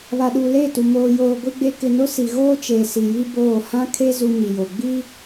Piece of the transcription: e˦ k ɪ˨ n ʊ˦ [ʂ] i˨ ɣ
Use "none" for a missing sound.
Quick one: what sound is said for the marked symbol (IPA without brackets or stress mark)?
s